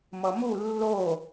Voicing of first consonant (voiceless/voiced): voiced